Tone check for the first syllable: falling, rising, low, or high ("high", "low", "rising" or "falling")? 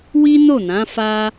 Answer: high